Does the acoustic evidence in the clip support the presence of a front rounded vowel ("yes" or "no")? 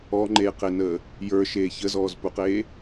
no